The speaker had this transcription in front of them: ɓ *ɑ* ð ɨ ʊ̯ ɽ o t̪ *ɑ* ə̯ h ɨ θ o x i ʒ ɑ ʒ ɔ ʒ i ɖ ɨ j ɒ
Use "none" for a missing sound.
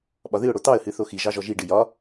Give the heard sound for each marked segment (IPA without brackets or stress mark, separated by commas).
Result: ɒ, ɑ